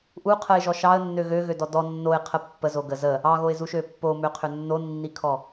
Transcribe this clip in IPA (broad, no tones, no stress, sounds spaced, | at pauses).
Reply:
ʔ u qʰ ə ɪ̯ ʒ ɔ ʃ ɑ ə̯ nː ø ɣ ø ɣ ø d ɔ d ɔ nː o ɪ̯ qʰ ə pː ə z o ɡ ə z ə | ɑ ɣ o ɪ̯ z u ʃ ø pː o m ø qʰ ø nː o nː i kʰ ɔ